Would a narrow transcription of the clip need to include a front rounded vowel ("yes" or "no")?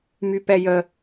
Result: yes